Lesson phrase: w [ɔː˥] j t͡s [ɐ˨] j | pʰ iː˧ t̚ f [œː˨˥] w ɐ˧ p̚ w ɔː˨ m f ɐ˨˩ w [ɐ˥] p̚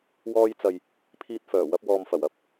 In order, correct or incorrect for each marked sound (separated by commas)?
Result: incorrect, correct, incorrect, correct